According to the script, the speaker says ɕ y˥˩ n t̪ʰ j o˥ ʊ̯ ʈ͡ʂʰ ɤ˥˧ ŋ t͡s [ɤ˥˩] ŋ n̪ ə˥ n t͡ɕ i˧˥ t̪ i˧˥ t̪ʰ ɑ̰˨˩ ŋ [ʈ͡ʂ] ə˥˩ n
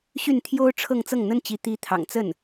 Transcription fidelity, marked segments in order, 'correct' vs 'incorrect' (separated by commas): correct, incorrect